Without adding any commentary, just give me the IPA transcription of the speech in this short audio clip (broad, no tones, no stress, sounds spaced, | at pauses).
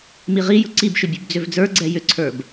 m i ʁ i j ʊ ǀ i b ʃ ʏ bʲ ʉ b d͡z ʏ v d͡z ə˞ ɡ͡ǀ ɛ j ʏ ǀʰ ə˞ b